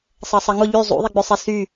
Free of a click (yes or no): yes